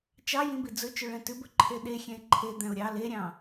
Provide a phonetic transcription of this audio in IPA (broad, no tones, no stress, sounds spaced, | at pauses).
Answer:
t͡ʃ ɑ j ĩ b i d͡z ɵ t͡ʃ ɵ ɭ ɛ̃ t ʉ b ɵ ǃʰ e ɗ e xʲ ɛ̃ ɪ̯ ǃʰ e d̪ æ̃ ʊ̯ ɾʲ ɑ l e ɾʲ ɑ̃